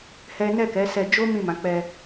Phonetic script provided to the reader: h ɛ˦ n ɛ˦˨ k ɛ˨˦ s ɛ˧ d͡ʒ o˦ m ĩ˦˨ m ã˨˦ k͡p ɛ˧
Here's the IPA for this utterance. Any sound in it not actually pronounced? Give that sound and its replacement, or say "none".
none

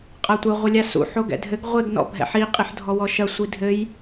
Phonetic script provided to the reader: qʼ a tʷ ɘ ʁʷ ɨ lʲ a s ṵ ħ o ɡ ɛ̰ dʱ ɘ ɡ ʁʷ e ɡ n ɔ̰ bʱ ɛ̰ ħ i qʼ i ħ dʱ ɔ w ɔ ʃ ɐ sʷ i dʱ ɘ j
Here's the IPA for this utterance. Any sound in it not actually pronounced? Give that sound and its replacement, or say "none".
none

